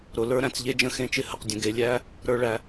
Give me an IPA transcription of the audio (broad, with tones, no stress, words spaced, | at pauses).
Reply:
ɾʊ˨ lə˞˦ɾæ̃˨t͡sʎe˦d͡ʒə̃˦ xẽ˦t͡ʃɪ˦ hə˨qdʲə̃˨ ɡe˨lʲæ˦ | ɾə˞˨ɭæ˨